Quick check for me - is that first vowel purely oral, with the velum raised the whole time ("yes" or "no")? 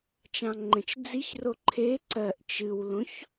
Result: no